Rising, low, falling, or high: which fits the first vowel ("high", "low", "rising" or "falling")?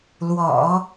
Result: low